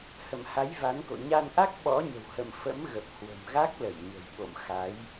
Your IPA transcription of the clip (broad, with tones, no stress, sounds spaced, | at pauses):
h ə̰˧˨ m h a˨˦ j v a˨˦ n k o̰˧˨ ɲ a˧ n ʔ a˦˥ k̚ ɓ ɔ̰˧˥ ɲ ə̤˨˩ w h ə̰˧˨ m f ə̰˧˥ m ɣ ə˨˩ p̚ h w ə̤˨˩ m ɣ a˦˥ k̚ l ə˧˩ j ɲ ə̤˨˩ j ɓ o̰˧˨ m x a˨˦ j